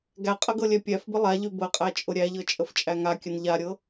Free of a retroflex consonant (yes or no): yes